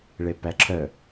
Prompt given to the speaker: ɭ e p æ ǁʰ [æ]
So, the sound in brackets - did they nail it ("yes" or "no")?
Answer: no